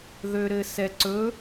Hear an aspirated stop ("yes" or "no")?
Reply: no